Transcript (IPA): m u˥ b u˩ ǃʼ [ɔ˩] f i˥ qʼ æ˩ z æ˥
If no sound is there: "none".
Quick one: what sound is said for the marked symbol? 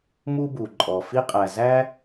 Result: ɔ˩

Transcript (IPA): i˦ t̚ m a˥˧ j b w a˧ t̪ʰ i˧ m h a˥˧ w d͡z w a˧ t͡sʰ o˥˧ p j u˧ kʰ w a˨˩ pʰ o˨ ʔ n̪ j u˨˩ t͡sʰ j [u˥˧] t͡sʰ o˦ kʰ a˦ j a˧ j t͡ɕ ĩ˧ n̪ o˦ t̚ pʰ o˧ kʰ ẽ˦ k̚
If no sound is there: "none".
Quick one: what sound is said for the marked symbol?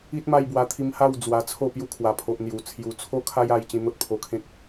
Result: u˨˩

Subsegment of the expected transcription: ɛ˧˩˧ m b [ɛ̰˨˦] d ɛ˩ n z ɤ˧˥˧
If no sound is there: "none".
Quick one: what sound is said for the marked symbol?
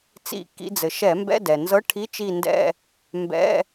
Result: ɛ̰˧˥˧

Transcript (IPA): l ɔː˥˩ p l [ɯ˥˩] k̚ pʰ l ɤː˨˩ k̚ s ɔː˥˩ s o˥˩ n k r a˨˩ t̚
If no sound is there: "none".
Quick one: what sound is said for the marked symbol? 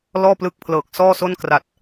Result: ɯ˦˥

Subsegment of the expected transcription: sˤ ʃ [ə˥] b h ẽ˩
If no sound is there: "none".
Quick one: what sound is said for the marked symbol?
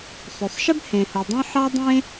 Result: ə˥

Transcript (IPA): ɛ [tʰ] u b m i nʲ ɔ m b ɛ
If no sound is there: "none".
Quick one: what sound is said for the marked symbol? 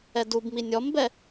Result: d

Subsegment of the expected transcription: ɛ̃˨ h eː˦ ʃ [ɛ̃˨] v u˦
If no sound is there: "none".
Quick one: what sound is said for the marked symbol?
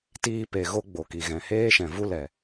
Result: ɛ̃˨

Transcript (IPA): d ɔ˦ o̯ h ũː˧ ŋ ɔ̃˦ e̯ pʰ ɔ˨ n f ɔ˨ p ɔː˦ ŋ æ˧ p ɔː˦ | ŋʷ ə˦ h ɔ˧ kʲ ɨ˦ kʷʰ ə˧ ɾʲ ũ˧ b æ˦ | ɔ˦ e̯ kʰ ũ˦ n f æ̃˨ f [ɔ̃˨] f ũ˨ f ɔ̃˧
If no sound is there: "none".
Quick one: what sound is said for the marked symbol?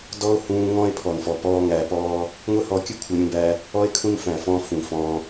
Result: ɔ̃˧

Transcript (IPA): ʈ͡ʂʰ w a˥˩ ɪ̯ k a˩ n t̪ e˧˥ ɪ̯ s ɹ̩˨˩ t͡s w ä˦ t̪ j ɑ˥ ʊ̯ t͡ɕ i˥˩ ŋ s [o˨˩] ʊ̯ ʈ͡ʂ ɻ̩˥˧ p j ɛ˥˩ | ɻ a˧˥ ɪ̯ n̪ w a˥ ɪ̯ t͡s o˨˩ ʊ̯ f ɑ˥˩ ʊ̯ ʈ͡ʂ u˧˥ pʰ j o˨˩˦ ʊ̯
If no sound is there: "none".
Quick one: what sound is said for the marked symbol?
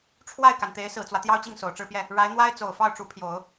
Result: o˨˩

